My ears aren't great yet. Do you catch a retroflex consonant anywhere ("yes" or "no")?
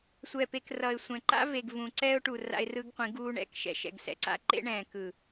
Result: yes